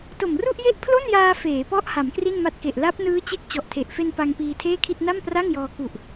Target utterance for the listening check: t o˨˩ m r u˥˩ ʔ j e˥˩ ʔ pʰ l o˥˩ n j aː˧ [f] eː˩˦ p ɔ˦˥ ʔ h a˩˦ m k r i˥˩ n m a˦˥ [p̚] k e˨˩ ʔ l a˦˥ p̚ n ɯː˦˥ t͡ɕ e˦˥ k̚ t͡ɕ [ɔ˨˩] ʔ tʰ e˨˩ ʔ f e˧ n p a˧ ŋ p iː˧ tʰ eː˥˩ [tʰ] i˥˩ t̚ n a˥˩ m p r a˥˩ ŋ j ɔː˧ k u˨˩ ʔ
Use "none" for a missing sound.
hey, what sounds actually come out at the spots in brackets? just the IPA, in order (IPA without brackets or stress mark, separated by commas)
f, t̚, ɔ˨˩, kʰ